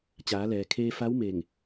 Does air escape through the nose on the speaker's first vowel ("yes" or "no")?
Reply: no